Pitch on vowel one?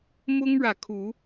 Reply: high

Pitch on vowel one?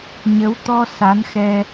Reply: rising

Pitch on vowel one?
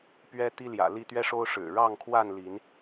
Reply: high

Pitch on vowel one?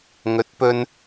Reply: rising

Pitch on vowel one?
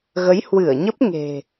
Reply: rising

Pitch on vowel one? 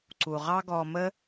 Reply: low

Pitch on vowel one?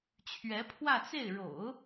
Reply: rising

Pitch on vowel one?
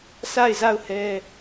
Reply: falling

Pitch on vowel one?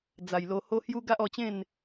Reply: low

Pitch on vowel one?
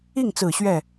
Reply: falling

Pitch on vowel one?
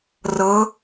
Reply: rising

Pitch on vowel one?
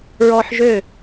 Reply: high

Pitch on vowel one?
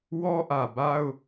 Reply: high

